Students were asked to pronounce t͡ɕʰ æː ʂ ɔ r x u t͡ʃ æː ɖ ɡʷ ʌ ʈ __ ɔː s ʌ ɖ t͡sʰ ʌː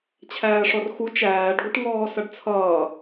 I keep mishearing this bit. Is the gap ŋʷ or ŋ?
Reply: ŋ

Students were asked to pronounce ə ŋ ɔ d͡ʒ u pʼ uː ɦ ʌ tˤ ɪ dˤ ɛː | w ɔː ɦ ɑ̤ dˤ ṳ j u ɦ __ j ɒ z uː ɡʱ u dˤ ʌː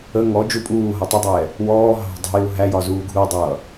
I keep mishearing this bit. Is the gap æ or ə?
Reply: æ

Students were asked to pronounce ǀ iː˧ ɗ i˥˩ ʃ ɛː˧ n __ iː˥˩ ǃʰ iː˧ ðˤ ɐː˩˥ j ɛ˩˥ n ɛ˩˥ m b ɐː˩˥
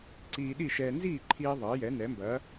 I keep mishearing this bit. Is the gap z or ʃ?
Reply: z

